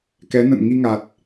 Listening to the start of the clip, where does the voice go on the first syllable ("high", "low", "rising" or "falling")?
rising